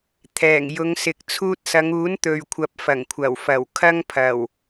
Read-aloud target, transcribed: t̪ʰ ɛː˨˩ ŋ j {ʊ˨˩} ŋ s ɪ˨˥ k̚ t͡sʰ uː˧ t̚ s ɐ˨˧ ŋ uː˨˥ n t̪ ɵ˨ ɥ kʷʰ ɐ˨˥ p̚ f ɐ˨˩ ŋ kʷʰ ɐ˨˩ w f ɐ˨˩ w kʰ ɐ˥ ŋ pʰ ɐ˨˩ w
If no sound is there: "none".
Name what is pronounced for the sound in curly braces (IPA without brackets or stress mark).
ʊ˨˧